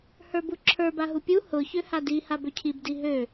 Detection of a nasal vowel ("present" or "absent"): absent